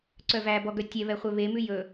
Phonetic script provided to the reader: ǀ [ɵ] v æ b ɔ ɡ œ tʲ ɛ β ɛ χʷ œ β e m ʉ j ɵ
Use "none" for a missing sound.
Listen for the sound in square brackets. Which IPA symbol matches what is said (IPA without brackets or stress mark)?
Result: œ